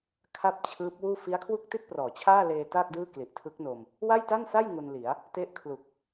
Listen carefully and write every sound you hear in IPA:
kʰa˥˩p̚t͡ɕʰɯː˦˥p̚wuː˥˩ fi˦˥a̯kʰwu˥˩k̚ti˥˩t̚prɔː˩˦ t͡ɕʰaː˥˩leː˧ ta˥˩k̚ dɯː˥˩kli˨˩ʔtʰɯ˦˥k̚no˧m | wa˥˩jta˥˩nsa˥˩j ŋu˧nli˩˦a̯ | te˦˥ʔkʰlu˨˩k̚

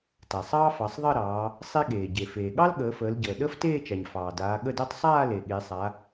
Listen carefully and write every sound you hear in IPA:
ta˩sˤɑː˥fɑ˩˧sˤðˤəː˥˧ ɾɑː˩˧ | sˤe˥ɠeː˩ ɟe˩feː˩ ɠɑ˥lɠəː˩˧fəː˩˧lɟəː˩ ɗəː˥fteː˥˧t͡ʃa˩ɲ fɑː˩daː˩˧ ɠə˥˧de˥tˤ sˤaː˥˧ le˩ ɠe˩˧sˤa˩˧

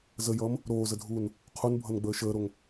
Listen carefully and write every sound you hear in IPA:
zəjʌːm | ɾoːzədʱuːn | qʰunbʱʌnɡ͡bəː ʃəːɾoŋ

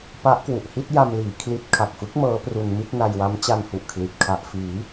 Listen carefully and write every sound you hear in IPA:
pa˦˥ʔkwu˨˩ʔhi˥˩t̚ ja˧mliː˩˦ kʰli˦˥t̚ kʰa˨˩k̚fɯ˦˥k̚ mɤː˦˥pru˧n mi˥˩t̚na˧jwa˦˥m t͡ɕa˧nhu˨˩ʔkʰli˨˩t̚ kʰa˨˩ʔfiː˩˦

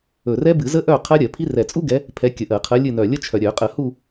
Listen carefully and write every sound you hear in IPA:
ɵ˨˩rɛ˦˥bɨ˧˩˧zə˦˥ ʔœ˦˨ qʰɜ˦˥ɾʲɜ˧˩˧pʰi˦˥ rɛ˨˩t͡sʼu˦˥ɡɛ˨˦ | pʰɛ˨˦ kʲə˨˩ʔɜ˧˩˧qʰɜ˨˦lʲɨ˦˨ nœ˨˩lʲə˦˥t͡ʃʰœ˨˩ ɾʲœ˧˩˧qʼə˧˩˧hu˦˨

